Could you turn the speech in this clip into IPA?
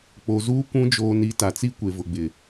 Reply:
k͡po˨zuː˦ kʷũ˨˦d͡ʒoː˨n i˨˦ta˨t͡si˦ kʷe˨vʊ˨ɡ͡bɪ˨

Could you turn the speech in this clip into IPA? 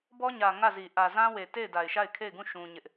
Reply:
bɔ˦ɲä˨ ŋä˦˨zi˨ ʔä˨zã˦ we˨te˦˨ɪ̯ da˨ɪ̯ʃa˦˨ɪ̯kʰe˦˨ɪ̯ɡũ˦˨ ʃũ˦ɲɪ˦ʔ

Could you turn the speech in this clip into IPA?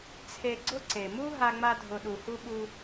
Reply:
t͡sʰe˧ɡ͡ǀʊ˦ ǀe˨mu˦ ɦa˧ŋ͡ma˧dʱʊ˨ɗu˨ hu˧ɓu˧

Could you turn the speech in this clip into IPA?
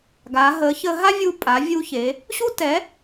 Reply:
ɡa˩˧ ɦə˩˧çə˧ɦa˥vʲu˧ pʼa˩˧ vʲu˧çe˩˧ | ɕu˥tɛ˩˥

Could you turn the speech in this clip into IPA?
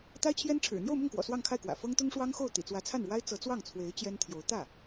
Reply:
t̪a˥ɪ̯t͡ɕʰjɛ˥nʈ͡ʂʰɻ̩˨˩ n̪jo˥˧ʊ̯mʊ˥˩ŋkwɔ̰˨˩ swɑ˥˧ŋkʰa˥˩ɪ̯kwä̰˨˩ fɤ˥ŋt̪ʊ˥ŋ ʂwɑ˥ŋxo˥˩ʊ̯ t̪ḭ˨˩t͡swä˧˥t͡sʰa˥˩nɻwa˥ɪ̯ t͡sɤ˧˥t͡swɑ˥˩ŋt͡sʰwe˧˥ɪ̯ t͡ɕjɛ˥nt̪ʰjo˧˥ʊ̯ t̪ä˥˩

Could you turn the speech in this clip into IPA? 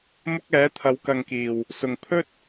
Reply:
mʊ˥k̚ɛː˨˥t̪ʰɐ˨˧w kɐ˨ŋ kiː˨˩w | sʊ˨ŋ pʰɵ˥t̚

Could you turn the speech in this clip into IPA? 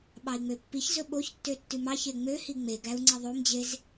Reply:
ɓɑi̯ŋ͡møpːiçzɵ ɓoçtːø tːʉmɑçe ŋ͡møhi ŋ͡meɡæu̯ ŋ͡ǀeðˤomd͡ʑez

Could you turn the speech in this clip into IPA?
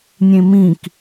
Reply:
nʲẽmĩk

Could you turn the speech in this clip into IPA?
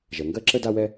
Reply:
ʒɜ˩ŋɡɜ˥ǁə˥ da˥wɛ˥

